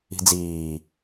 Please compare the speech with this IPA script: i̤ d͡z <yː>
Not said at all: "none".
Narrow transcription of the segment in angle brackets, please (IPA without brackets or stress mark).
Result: iː